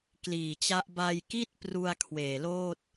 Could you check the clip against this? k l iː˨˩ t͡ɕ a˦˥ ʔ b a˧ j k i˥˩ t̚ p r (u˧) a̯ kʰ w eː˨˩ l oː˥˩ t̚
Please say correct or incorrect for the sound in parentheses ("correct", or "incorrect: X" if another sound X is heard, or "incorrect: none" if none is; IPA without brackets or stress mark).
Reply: correct